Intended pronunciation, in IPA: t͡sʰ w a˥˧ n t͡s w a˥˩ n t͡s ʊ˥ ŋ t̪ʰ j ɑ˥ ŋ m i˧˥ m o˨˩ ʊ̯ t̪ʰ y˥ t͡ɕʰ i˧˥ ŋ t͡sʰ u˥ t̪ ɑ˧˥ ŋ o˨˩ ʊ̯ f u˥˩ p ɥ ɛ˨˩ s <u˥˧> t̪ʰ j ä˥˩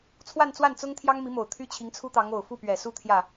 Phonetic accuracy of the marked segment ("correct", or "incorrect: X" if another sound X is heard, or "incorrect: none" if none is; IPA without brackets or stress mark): incorrect: u˥